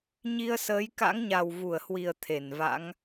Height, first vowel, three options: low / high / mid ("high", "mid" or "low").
high